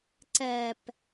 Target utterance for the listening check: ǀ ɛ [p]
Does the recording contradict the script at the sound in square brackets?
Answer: no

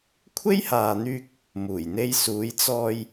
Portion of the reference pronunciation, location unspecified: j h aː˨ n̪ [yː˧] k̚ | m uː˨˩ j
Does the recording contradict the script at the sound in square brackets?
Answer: no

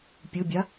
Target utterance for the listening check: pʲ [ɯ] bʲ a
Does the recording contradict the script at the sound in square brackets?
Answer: no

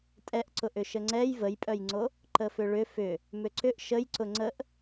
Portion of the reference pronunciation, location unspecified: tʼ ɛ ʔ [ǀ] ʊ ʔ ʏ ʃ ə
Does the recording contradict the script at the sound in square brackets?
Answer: no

